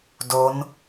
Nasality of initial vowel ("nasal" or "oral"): oral